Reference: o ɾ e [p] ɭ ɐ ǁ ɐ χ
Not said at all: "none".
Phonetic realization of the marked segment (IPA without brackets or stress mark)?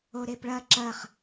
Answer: p